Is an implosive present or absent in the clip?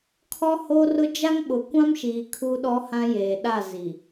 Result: present